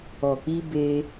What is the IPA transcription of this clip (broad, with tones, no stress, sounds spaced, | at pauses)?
ɔ˨ k͡p i˧ b e˧